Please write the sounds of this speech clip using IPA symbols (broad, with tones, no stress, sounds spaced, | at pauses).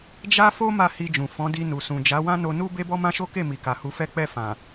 d͡ʒ a˦ f o˦ m a˦˨ h i˧ d͡ʒ ũ˨ f ɔ̃˨˦ d i˧ n u˨ s ũ˨ d͡ʒ a˨˦ w ã˦ n o˧ n u˦ b e˦ b ɔ˦ m ã˦ ʃ o˦ k e˦˨ m i˨ k a˨ h u˧ f ɛ˦ k͡p ɛ˦˨ f ã˨